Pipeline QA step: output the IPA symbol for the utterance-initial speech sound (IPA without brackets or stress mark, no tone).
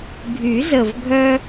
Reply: ɡʱ